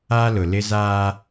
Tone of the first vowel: high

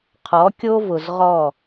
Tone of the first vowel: rising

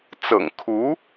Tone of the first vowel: low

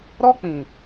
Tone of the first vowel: high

